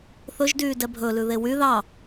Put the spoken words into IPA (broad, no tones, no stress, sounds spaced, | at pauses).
θ ɵ ʒ d yː d ɛ bʱ ɵ l ʉ ð e w y ð ɑ